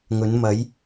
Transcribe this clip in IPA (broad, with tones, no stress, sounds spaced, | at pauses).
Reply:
ŋ ɵ˨˧ n m ɐ˨˧ j